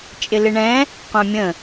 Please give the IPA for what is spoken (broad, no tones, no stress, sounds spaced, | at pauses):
t͡ʃʼ ɪ l ɪ ɳ ɛ̃ | qʷ æ̃ mʲ ə̃